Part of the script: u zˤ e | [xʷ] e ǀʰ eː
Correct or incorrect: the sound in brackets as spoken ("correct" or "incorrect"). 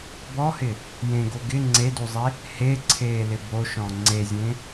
incorrect